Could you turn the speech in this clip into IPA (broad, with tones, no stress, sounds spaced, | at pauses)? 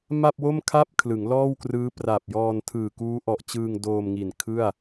m a˥˩ p̚ w o˥˩ m kʰ a˥˩ p̚ kʰ l ɯ˩˦ ŋ l ɔː˥˩ w k r ɯː˦˥ p r a˨˩ p̚ j ɔː˧ n tʰ ɯː˨˩ k uː˦˥ ʔ ɔ˨˩ ʔ t͡ɕ ɯː˧ ŋ d oː˧ m ŋ i˨˩ n kʰ ɯ˥˩ a̯